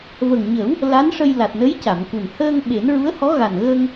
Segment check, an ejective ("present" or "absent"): absent